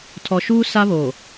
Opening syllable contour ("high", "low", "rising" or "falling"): low